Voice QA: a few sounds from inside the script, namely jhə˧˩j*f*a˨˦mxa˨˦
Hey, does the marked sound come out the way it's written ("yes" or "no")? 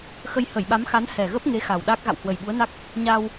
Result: no